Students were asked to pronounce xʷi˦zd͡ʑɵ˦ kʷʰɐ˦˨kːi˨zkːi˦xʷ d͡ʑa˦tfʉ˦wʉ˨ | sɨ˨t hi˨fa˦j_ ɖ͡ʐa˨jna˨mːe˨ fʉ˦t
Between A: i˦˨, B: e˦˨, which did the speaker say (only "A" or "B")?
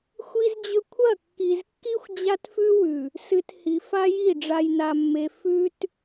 A